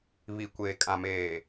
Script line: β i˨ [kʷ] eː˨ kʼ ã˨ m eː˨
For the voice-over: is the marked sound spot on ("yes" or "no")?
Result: yes